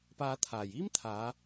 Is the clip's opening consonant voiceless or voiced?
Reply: voiceless